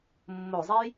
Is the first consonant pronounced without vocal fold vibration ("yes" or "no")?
no